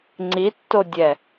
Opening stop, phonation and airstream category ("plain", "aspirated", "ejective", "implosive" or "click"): click